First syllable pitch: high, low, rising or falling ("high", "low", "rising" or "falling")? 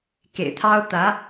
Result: low